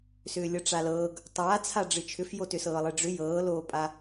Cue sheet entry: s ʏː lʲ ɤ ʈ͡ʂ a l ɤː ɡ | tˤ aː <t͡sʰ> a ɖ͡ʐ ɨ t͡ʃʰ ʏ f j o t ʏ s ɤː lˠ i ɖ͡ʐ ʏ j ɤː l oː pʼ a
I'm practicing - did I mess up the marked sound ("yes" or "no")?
no